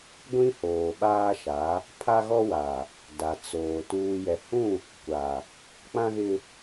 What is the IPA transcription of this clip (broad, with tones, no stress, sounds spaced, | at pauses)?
ɡʷ ĩ˦ h oː˨ ɓ aː˦ ʃ a˨˦ | pʰ a˦ ɣ ɔ˦ w a˨ | d a˨ t͡s oː˨ t uː˨ j ɛ˨ h ũ˦˨ | kʷ a˨ | k͡p ã˦ ɣ ɪ˦